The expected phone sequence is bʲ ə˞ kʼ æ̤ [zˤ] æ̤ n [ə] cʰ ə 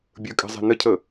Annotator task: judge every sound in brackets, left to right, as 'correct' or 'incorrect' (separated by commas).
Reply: correct, correct